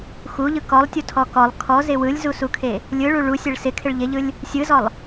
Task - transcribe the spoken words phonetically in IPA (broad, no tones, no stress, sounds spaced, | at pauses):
x u ʎ ɯ k ɔ lˠ tʲ u tʰ ɔ k ɔ lˠ kʰ ɔ z ɪ w ɯ lʲ z u s u kʰ e | lʲ ɯ ɭ u ɭ u sʲ e ɭ s ɪ kʰ ɪ ɭ ʎ ɪ ʎ ɯ lʲ | sʲ ɯ z ɔ lˠ